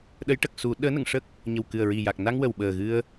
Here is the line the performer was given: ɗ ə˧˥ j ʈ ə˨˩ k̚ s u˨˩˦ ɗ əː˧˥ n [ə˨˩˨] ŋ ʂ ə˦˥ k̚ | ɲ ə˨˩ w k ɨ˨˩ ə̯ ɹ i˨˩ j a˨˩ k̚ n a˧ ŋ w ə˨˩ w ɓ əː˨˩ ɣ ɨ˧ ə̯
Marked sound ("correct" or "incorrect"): correct